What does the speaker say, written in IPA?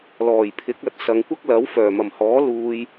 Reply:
lɔː˨˩jpʰɪ˨˥k̚ɐ˨˥t̚ sɐ˨˧ŋkʷɐ˥k̚ lɐ˨˥wfœː˨˩mɐ˨˩mhɔː˨˥ luː˧j

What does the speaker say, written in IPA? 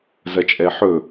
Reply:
zɐt͡ʃʼɛħɵ

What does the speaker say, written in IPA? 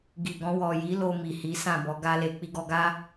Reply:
ɡi˨ ɡɔ̃˧wɔ˨ ji˨˦ lo˧mi˨hi˨˦ sã˦˨bɔ˨˦ɡa˦le˧ k͡pi˧ɡɔ˧ɡa˦

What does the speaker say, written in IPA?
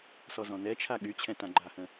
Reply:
sɔzɔ̃nɛt͡ʃʰa ɠyt͡ɕʰɛ̃ tãɡ͡ǃahə̃

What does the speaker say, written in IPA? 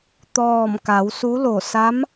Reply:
t̪ɔː˧˩m ka˩˧wsu˧˥lo˧˩ sa˧˥m

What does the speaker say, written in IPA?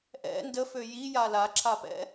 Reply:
ʔɛ̰ ndəfø jija laǁʰapɛ̰

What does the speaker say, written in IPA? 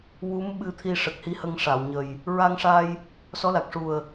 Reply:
wu˧˥m ɓɨ˧t̪ʰi˧ ʂə˨˩k̚hi˧hə˧ŋ ʂa˨˩˨wɲə˨˩j | ɹa˧ŋʂa˧j | sɔ˧˥la˨˩k̚ʂu˨˩ə̯

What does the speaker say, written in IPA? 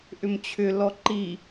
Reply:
ʔʏmt͡ɕʰʏ lɔǃi

